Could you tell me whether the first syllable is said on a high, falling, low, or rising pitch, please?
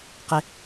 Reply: high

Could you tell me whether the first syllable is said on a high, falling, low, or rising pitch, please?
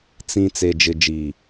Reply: low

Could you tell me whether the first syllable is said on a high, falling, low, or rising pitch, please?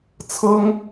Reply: high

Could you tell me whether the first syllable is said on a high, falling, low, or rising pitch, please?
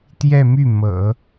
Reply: falling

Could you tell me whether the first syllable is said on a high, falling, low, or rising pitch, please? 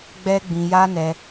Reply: high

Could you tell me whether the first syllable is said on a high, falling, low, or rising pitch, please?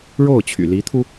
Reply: falling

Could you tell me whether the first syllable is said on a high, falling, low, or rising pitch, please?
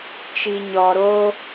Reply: low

